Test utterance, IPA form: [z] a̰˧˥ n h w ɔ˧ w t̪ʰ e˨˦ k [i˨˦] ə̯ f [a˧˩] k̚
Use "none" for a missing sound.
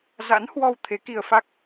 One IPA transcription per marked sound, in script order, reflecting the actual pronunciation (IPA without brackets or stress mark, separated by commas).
z, i˧, a˦˥